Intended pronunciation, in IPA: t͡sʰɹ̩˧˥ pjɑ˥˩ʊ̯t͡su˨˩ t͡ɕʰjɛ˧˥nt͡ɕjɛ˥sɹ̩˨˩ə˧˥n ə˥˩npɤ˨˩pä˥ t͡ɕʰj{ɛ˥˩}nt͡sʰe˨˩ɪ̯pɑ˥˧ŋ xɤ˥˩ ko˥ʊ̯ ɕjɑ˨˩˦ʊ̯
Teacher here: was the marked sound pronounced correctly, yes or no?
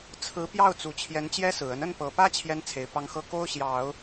no